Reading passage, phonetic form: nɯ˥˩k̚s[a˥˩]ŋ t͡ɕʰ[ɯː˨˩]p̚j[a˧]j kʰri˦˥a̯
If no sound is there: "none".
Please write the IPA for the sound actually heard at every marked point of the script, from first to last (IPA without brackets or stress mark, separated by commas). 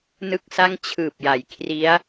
a˥˩, ɯː˨˩, a˩˦